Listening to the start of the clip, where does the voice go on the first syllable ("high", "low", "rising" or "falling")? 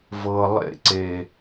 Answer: low